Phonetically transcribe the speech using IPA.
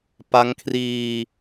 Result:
p a˦˥ ŋ kʰ r iː˧

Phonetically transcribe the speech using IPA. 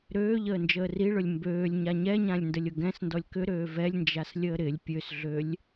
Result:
ɾ øː ʎ əː n d͡ʒ əː r i ɭ ʊ lʲ m b øː lʲ ɲ a ɲ ɛ ɲ ã lʲ n d ə lʲ ʊ ɡ ɛ̃ s n d ɔ lʲ k ʏ ɾ øː v ɛ lʲ n d͡ʒ a s lʲ əː ɾ ɪ lʲ pʲ ø s ɮ ø lʲ

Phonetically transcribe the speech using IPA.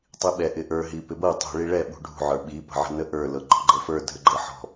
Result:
tˤ i ɓ ɛ ʔ ɪ ʔ ə˞ ɦ i p ɪ b ɤ tˤ ṳ ɭ i ɭ ɛ ɓ ṳ ɖʱ ṳ ʕ ə˞ ɓ i p ə̤ ʕ ə̤ n ə ʔ ə˞ l ɤ ɡ͡ǃ ɔ̤ ɡ͡ǃ ɤ f ə˞ dʱ ə ɡ͡ǃ ɤ ħ ɔ̤

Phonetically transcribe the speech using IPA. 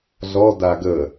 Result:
ɮ ɔ d a ɡ ə

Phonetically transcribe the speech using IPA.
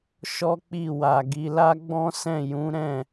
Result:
ʃ ɔ˦ k͡p i˦˨ w a˨ ɡ i˧ l a˦ ɡ͡b ɔ̃˦ s ɛ̃˦˨ j ũ˨˦ ɾ ɛ̃˦˨

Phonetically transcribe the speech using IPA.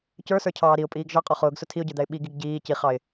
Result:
c ə˞ s ə˞ cʰ ɑː ɾ i ʊ̯ pʼ iː ɡ ʒ ɑ qʼ ɔ χ ʊː ɡ s ʊ tʰ i ʊ̯ ɟ ə˞ d̪ æ ɪ̯ ɓ i ɡ i ɡ ɟ iː c i χ ɑ ɪ̯

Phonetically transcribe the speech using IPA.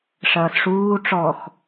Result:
ʂ ɐː s ʂ uː ʈ͡ʂ ɔ x

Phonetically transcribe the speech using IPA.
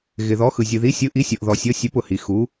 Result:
ɣ ɪ˩ ð ɔ˩˥ x ɯ˩ zʲ ɯ˩ ð i˩˥ sʲ ɯ˩˥ ʔ i˩˥ sʲ ɤ˩ ʔ ð ɔ˩ sʲ ɤ˩˥ sʲ e˩˥ p ʊ˩ h i˩ x u˩˥

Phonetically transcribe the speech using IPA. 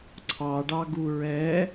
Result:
ǀʰ ɑ ɖ ɑ ɡ u ɹ ɛ

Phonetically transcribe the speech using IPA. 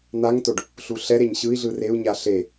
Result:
n̪ a ŋ t o ɖ | ɬ u ɬ ɛ ɾ e ɲ ɕ ɯ i̯ ɮ ɯ r e u̯ ɲ a ɬ e

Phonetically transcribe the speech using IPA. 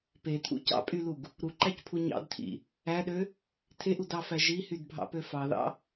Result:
p e tʰ ṵ c ɑ̰ pʼ y l u ɡ | ɾ u ǃ æ c pʰ u ɲ ɑ̰ d tʰ ḭ | æ ɗ ø | tʰ e ʔ u d ɑ f æ ʒ i h y d bʱ ɑ̰ p ø f ɑ ð ɑ̰

